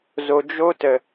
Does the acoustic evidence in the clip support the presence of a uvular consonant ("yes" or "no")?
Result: no